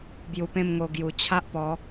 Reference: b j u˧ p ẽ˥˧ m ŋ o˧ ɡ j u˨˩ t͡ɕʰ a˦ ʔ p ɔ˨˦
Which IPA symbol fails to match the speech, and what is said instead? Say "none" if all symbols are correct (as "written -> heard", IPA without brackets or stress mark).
none